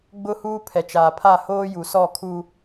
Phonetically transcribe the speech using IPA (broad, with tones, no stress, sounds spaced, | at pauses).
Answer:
ɡ͡b ʊ˦ h uː˦ pʰ ɛ˨ t͡ʃ aː˨ pʰ a˦˨ h oː˦ j u˨ s ɔ˦˨ kʰ u˦